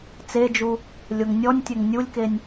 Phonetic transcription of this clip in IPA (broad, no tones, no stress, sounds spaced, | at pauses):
t͡s e d͡ʒ u | lʲ o ŋ nʲ ɔ nʲ tʲ ɘ ŋ nʲ u lʲ k e nʲ